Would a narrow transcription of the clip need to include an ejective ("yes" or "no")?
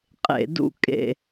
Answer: yes